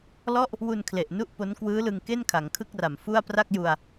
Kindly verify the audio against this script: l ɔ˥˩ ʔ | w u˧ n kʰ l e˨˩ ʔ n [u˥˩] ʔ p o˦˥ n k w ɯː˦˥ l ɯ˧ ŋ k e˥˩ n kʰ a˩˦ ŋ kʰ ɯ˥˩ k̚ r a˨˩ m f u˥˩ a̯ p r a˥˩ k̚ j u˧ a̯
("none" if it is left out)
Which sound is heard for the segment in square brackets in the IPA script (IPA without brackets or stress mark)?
u˥˩